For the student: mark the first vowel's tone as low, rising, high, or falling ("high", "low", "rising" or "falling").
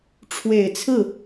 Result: low